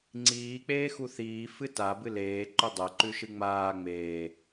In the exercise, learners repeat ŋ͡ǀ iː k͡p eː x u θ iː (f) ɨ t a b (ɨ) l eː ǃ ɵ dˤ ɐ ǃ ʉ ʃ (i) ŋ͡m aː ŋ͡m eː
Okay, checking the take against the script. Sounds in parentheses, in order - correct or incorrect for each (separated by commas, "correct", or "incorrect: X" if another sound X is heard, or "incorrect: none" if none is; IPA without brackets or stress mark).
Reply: correct, correct, incorrect: ɨ